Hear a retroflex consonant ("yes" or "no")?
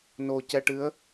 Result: yes